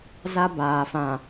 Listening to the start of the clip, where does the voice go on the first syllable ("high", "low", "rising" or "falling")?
high